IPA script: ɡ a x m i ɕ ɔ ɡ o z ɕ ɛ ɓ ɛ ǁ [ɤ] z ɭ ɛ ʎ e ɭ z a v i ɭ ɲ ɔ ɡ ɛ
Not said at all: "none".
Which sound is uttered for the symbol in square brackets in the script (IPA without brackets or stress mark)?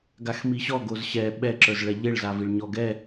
ə˞